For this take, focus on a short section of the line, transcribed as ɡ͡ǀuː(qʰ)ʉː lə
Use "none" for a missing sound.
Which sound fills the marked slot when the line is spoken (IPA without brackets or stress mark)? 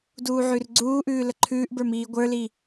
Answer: ʔ